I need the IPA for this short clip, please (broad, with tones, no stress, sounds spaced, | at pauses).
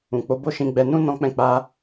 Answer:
ũ˨ k͡p o˨˦ b o˦˨ ʃ ĩ˧ ɡ͡b ɛ˧ n ũ˦ n ɔ̃˧ k͡p ɛ̃˧ k͡p a˦